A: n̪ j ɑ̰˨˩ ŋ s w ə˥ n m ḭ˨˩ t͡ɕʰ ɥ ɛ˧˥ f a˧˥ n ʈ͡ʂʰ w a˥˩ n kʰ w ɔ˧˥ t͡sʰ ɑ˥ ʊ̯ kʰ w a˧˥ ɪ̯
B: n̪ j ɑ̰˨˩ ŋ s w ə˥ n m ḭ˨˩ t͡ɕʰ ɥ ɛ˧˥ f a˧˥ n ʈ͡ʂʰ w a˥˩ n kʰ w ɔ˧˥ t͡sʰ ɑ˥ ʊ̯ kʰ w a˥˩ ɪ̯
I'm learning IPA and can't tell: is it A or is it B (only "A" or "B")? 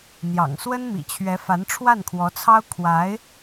A